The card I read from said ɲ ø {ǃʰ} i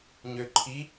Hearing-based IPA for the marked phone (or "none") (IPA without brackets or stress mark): ǃʰ